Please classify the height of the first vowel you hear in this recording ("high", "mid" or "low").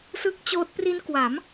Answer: high